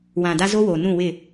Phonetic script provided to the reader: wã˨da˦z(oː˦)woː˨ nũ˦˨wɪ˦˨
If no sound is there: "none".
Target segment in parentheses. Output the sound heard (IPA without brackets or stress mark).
o˦